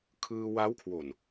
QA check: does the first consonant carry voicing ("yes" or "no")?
no